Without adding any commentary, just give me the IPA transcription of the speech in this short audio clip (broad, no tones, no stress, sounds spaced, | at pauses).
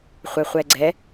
χʷ ɛ χʷ ɛ ɡ͡ǀ ɛ